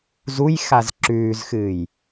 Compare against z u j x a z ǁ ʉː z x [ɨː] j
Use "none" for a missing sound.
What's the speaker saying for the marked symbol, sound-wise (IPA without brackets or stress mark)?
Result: ɨː